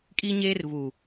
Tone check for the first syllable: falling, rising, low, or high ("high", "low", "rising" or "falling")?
high